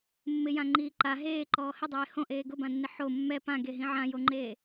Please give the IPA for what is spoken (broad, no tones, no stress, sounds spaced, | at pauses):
mː ɪ j ã ŋ͡ǃ iː ǃ a ɦ eː ǃ ɔː h ɪ dˤ eː h õ ʔ eː ɡ ʊ b ã nː ɪ ħ o mː ɛ p ã ɡ e ɦ ĩ ʕ ã j o ŋ͡ǃ eː